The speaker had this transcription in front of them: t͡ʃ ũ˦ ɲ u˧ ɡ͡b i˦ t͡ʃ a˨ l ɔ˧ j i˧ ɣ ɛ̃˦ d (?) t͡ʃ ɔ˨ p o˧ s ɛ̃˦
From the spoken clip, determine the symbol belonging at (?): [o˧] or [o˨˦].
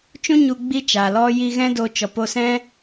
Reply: o˧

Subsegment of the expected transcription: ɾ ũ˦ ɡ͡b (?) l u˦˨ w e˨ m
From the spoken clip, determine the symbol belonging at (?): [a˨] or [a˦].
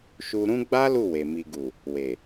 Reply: a˦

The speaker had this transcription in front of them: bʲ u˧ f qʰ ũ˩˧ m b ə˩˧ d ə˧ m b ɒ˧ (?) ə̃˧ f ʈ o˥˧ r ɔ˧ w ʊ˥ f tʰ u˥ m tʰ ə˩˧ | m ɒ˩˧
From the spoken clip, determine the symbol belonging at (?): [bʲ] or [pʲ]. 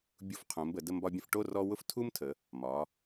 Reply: bʲ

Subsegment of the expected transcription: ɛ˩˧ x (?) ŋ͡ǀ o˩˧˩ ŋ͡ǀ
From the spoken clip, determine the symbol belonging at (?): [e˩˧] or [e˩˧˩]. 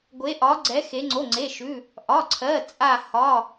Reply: e˩˧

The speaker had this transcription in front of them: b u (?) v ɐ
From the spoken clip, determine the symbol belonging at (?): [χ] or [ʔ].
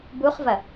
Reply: χ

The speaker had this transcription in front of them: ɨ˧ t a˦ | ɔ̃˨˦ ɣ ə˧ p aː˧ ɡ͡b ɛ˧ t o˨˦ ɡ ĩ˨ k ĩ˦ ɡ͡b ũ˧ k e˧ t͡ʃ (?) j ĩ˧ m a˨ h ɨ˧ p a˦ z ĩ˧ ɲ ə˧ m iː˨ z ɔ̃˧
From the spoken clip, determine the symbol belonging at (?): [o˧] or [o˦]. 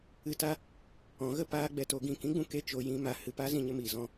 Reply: o˧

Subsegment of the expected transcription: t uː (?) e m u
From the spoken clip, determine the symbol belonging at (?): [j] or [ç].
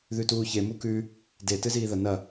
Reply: ç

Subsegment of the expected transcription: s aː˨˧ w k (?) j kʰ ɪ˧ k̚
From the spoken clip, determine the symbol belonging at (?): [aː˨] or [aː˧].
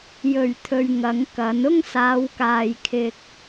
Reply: aː˨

